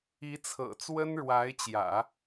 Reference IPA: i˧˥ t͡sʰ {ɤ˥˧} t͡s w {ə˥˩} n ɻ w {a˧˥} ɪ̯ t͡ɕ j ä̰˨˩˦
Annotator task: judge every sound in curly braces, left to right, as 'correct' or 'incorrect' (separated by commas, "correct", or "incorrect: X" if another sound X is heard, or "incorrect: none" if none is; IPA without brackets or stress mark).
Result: incorrect: ɤ̰˨˩, incorrect: ə˥, correct